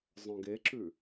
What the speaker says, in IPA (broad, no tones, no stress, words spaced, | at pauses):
zˤœ̃ɡeǁʉ